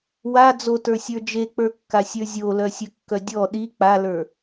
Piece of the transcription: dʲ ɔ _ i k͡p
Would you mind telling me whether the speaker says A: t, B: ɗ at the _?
B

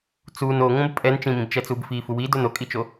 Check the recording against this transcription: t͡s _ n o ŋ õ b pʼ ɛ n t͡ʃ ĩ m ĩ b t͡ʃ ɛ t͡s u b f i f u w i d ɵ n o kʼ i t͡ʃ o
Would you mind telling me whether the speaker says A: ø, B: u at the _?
B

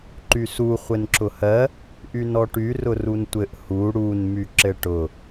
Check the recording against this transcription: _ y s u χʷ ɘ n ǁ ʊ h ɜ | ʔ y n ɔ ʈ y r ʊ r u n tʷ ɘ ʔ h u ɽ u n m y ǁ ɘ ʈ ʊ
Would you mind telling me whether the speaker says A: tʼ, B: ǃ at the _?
B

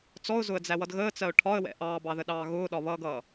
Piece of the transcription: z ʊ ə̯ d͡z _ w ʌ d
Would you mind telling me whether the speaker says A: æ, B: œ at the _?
A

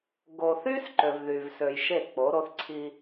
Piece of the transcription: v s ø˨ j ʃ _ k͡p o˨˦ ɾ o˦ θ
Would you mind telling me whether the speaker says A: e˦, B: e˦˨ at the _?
B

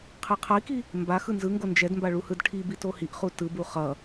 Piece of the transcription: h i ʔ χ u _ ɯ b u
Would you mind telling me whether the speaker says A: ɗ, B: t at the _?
B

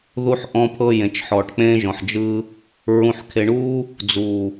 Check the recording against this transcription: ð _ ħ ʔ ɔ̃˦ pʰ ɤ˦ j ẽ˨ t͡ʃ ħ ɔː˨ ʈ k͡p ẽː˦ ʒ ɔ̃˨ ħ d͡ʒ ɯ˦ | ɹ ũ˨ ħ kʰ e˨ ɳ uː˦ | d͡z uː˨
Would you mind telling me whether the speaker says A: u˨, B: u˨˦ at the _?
A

